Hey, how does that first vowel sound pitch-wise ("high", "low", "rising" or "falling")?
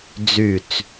falling